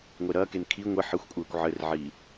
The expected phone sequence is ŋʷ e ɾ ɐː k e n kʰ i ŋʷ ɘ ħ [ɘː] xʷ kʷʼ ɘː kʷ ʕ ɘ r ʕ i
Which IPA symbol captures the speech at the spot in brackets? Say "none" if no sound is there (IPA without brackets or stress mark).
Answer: ɘ